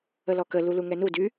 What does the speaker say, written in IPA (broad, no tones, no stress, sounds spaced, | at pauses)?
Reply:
ə l ɔ k ə l u l u ŋ ɛ n u d y